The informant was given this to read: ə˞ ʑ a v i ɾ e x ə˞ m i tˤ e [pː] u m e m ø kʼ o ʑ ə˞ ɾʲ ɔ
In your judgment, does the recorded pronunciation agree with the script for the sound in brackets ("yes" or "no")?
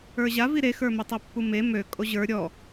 yes